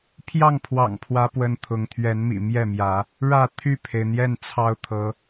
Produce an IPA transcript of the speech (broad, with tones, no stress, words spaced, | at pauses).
pʰjɑ˥˨ŋpʰwɑ̰˨˩ŋpʰwä˨˦ pwə˦nt̪ʰʊ˨˦ŋ t̪ʰɥɛ˨˦nmḭ˨˩ mjɛ˥˨mjä˨˦ | ɻä˥˨ t̪ʰy˥˨pʰe˩ɪ̯n̪jɛ˥˨n t͡sʰɑ˦ʊ̯t̪ʰɤ˨˦